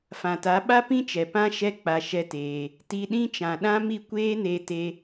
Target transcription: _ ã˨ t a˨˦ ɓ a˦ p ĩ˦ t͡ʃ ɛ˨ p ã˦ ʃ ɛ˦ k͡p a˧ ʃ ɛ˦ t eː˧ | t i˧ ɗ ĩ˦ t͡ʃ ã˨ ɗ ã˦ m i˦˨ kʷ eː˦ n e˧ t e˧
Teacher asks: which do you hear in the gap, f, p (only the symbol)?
f